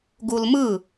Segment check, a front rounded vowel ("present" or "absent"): absent